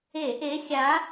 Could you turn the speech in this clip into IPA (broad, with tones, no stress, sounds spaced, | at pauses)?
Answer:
e˧˩˧ ʔ e˧˥ xʲ a˧˥